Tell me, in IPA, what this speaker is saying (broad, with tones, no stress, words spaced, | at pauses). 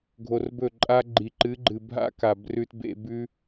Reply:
ɡʱo˧rbɵ˦˨ǃʼa˦ ɡ͡ǃi˨ǃɨ˨˦ɡ͡ǃɨ˨ bʱa̰˦ka˨b rʉ˧tbḛ˧ bʉ˦